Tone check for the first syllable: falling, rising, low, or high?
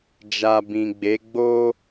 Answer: low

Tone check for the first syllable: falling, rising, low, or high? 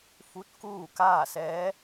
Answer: rising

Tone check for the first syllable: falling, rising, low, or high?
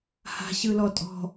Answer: low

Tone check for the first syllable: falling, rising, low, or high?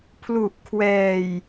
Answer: low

